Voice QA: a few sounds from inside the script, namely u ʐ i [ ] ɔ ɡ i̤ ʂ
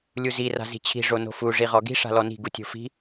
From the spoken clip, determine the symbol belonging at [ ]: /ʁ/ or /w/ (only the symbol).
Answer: ʁ